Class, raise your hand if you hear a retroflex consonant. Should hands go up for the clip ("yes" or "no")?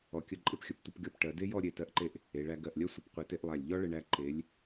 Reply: yes